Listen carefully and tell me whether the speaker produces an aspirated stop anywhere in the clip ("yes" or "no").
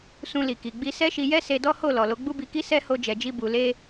no